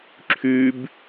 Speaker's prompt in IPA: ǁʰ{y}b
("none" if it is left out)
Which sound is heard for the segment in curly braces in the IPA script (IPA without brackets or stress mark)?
y